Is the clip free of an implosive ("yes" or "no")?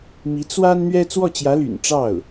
yes